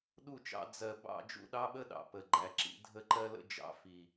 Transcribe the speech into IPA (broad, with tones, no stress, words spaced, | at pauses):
ɗu˦˨t͡ʃɑ̰˧ d͡zɜ˨ bɑ̰˦˨ d͡ʒṵ˦ɗɑ˦ɓə˦ɗɑ̰˨ pə˨ɡ͡ǃæ˨ǁḭ˧ dʱə˧ǃɜ˧lə̰˧ d͡ʒɑ̰˦fi˨